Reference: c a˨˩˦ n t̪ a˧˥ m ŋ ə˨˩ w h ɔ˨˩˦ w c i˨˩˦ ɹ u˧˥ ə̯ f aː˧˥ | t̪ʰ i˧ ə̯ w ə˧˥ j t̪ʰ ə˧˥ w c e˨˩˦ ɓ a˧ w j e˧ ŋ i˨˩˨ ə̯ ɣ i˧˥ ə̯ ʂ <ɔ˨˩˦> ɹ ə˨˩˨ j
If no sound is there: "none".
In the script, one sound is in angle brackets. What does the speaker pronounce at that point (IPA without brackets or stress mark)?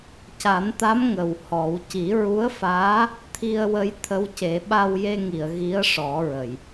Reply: ɔ˨˩˦